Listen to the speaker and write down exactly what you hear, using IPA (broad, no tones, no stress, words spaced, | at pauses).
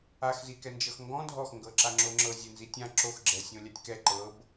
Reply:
ax zikɛnd͡ʒɤxŋɡɔ̃ dʱɔx ŋɡɤǁaŋ͡ǁoŋ͡ǁɤ zʲenzitʲã ǁox ɡ͡ǁɛsʲõlʲatʲkɛ ǃɤb